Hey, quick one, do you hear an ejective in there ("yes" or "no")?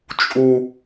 yes